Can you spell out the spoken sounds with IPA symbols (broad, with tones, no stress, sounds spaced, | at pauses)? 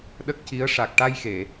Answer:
ɗ ə˦˥ k̚ c i˧˥ ə̯ ʂ a˨˩ k̚ ʈ a˧ j x e˨˩˨